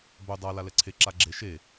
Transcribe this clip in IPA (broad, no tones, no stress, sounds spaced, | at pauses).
b ɵ dˤ a l a l ɛ ǀʰ e ǁ a ɡ͡ǁ e ʃ e